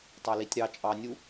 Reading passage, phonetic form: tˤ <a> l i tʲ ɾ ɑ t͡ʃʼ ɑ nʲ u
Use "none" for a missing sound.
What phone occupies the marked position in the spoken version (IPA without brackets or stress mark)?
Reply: a